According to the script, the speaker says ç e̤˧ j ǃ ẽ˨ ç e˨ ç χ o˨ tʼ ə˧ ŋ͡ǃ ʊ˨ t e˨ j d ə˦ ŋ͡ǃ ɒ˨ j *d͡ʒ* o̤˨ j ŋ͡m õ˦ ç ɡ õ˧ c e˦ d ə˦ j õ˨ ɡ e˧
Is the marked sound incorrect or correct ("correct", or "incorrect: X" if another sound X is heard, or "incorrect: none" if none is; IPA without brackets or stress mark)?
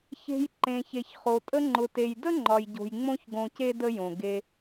incorrect: ɟ